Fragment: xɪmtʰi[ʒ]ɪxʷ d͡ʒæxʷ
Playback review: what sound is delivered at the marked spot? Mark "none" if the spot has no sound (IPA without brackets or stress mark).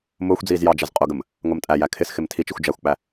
t͡ʃ